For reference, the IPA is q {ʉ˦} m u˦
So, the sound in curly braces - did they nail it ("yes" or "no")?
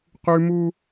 yes